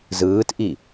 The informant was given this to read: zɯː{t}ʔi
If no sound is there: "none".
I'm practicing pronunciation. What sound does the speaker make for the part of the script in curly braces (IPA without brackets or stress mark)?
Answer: t